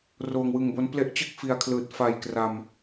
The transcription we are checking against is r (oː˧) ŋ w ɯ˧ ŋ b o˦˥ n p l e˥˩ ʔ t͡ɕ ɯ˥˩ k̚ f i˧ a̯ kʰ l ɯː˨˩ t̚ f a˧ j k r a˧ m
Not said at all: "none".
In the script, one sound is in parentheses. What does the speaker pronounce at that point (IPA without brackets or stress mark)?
oː˧